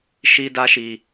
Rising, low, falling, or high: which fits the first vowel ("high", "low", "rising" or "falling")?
high